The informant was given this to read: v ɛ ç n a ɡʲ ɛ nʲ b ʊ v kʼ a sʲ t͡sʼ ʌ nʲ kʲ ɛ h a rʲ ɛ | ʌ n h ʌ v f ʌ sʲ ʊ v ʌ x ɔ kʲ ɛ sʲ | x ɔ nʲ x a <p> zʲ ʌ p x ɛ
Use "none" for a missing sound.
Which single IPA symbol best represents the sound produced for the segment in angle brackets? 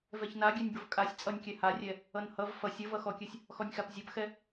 p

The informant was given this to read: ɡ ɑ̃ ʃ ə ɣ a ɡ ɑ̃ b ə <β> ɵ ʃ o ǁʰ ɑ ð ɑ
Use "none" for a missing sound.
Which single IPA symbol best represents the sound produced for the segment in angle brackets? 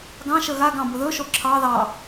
ð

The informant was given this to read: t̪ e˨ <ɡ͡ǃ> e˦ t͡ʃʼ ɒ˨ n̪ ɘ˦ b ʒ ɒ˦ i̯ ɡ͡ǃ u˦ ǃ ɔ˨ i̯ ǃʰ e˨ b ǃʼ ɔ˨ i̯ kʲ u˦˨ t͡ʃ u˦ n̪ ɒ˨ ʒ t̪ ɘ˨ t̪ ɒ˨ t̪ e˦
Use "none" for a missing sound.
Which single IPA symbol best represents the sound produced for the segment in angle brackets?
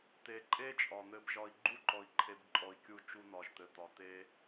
ǃʼ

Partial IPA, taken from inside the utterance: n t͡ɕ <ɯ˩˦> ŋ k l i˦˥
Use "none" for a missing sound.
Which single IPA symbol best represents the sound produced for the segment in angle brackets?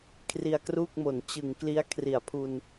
ɯ˩˦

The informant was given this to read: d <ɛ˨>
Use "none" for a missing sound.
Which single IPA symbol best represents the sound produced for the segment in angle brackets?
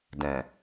ɛ̃˨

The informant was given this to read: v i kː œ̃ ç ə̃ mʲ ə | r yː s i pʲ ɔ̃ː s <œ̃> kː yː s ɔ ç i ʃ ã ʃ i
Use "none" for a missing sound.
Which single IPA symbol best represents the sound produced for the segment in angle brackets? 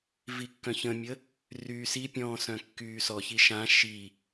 œ̃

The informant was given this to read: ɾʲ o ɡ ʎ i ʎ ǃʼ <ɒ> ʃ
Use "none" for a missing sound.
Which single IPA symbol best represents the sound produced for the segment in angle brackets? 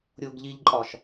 ɒ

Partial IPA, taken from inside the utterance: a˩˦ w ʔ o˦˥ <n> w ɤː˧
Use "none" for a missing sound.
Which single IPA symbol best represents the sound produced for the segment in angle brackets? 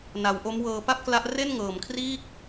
m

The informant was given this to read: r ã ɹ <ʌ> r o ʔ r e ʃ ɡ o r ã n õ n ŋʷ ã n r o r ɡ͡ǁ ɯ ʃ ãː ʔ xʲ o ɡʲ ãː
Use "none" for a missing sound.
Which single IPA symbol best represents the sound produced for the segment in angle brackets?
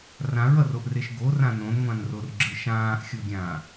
ʌ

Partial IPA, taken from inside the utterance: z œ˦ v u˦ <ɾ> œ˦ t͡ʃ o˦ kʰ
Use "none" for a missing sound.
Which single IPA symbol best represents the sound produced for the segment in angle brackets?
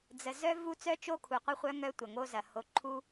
t͡s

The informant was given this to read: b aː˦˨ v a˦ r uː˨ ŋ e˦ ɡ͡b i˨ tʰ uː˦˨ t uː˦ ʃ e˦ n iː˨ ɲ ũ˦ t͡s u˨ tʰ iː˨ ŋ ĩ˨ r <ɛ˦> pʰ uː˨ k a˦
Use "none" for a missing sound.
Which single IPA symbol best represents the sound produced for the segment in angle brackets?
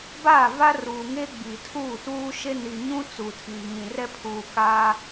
ɛ˦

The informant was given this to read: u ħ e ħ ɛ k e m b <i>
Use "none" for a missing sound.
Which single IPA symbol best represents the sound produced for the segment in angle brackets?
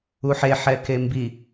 i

